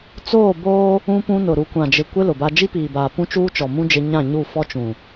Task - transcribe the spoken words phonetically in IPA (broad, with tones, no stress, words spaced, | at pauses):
t͡soː˦˨ boː˦ | ũ˦pũ˦nʊ˨ ɾu˨kʷã˨d͡ʒɪ˨ kʷɪ˦ lʊ˨ba˦ d͡ʒi˦piː˨baː˨ pũ˦t͡ʃuː˦t͡ʃɔ˨mũ˦ d͡ʒɪ˦ ɲã˦˨ɲu˦˨fɔ˦ t͡ʃũ˨